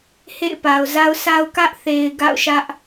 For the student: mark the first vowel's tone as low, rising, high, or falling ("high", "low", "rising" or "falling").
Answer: falling